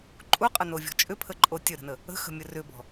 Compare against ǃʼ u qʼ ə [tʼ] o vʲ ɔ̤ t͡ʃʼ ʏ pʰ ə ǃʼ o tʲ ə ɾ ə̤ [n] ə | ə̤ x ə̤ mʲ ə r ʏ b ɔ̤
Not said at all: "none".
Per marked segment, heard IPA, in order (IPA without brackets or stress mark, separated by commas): n, n